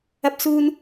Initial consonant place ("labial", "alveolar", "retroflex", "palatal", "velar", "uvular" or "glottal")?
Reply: labial